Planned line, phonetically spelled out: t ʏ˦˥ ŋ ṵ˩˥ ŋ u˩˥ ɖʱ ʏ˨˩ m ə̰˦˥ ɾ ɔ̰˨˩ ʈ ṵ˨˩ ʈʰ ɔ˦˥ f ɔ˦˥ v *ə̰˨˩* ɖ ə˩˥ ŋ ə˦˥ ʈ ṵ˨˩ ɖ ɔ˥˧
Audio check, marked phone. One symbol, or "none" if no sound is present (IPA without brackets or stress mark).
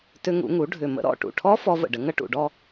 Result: ə̰˨˩